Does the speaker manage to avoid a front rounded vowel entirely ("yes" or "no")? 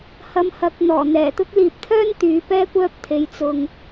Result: no